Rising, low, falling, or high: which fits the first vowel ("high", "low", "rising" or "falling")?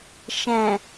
low